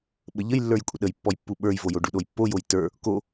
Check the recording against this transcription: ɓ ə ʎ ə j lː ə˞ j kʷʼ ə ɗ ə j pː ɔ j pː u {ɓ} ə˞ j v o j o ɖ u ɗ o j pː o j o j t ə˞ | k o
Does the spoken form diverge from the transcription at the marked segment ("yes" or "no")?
no